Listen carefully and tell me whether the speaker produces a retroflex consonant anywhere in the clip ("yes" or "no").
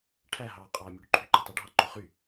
yes